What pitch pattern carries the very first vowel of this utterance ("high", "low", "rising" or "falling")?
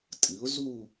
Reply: rising